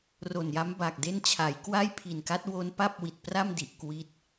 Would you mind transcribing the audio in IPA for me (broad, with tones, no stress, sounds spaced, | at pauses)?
r o˨˩ n j a˦˥ m b a˨˩ k̚ d e˥˩ n t͡ɕʰ a˩˦ j k w a˥˩ j pʰ i˨˩ n k a˦˥ t̚ w o˦˥ n p a˥˩ p̚ w i˨˩ t̚ p r a˥˩ m d i˨˩ ʔ k w i˦˥ t̚